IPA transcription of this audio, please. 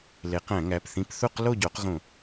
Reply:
l e˨˦ q æ̃˧˩˧ ŋ æ˩˧˩ p θ ĩ˦ p θ u˥˨ q l o˥˨ ɟ o˨˦ q ɣ õ˧˩˧

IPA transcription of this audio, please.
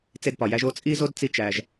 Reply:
t͡s e˦ d p ɒ˩ j æ˥ ʒ o˦ t͡sʼ i˥ z o˥ d t͡s i˦ t͡ʃ æ˨ ʒ

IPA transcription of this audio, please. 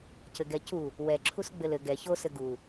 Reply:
c ɘ ɡ ɛ c u | w ɛ ǁʰ u s ɡ͡b ɘ l ɘ ɡ ɛ ç o s ɘ ɡ u

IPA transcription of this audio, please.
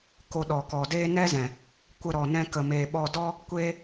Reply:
k o˧ ɗ ɔ˨ k ɔ˨ d eː˦ n ɛ˦ z ɛ̃˨ | kʷ ə˧ ɾ ɔ˨ n ɛ̃˧ k ə˧ m eː˧ ɓ ɔ˦ d ɔ˦ | kʷ eː˦

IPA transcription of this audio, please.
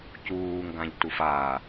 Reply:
c uː ŋ ɡ ã ʎ t u f a

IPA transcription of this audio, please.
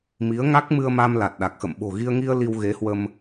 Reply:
m i˨˦ ə̯ ŋ a˦˥ k̚ m ɨ˧ ə̯ m a˧ m l a˨˩ t̚ ɗ a˨˩ k̚ x ə̰˧˨ m ɓ o̤˨˩ ɣ i˧ ə̯ ŋ i˧ ə̯ l i˧ w ɣ e˨˦ h w ə˧ m

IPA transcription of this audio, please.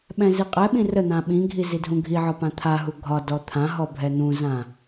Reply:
ɓ ɛ̃ z i qʼ ɛ ɓ ĩ r ə n̪ ã ɓ ĩ ɡʱ i z i dʱ ũ ɡʱ i ʕ ɒ p ã t̪ʰ a ɦ u ɡʱ ɒ d ɔ t̪ʰ ã ɦ ɔ bʱ ɛ n̪ ũ z ã

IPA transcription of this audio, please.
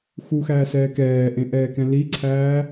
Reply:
x u x æː s ɛː k ɛː ʔ ẽ ʔ ɛː k ɛ̃ l i ǀʰ æː

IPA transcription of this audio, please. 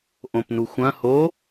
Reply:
ʔ õ p n u xʷ ɐ̃ h o

